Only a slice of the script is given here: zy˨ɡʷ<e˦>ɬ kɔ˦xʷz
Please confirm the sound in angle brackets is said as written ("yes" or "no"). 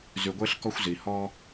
yes